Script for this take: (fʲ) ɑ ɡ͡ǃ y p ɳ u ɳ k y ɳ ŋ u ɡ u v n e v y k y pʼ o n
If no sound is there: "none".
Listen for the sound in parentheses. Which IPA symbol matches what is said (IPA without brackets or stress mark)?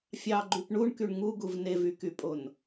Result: fʲ